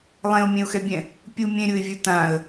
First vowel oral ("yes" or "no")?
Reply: no